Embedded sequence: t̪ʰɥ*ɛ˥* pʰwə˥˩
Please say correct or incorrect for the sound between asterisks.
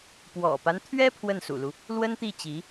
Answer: correct